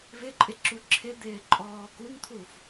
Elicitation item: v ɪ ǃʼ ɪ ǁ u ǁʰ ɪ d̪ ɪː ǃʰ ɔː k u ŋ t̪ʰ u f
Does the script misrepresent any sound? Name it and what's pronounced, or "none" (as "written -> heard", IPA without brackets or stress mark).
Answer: ǃʰ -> ǃʼ